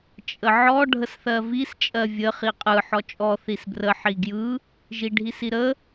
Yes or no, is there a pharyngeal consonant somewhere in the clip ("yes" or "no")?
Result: yes